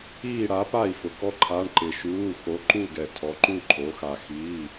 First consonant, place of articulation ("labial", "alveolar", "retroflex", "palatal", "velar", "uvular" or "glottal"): retroflex